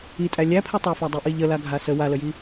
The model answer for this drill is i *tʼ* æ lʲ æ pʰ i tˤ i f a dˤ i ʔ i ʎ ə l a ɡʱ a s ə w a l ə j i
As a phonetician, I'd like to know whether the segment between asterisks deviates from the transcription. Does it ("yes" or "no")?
no